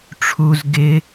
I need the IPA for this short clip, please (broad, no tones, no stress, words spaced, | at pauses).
ʈ͡ʂʰuz ɡɪ